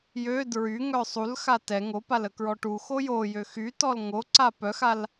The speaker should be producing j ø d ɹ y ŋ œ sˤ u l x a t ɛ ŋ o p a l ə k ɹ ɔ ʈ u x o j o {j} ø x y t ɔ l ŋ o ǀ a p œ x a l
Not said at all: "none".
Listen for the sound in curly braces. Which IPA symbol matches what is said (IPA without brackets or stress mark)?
j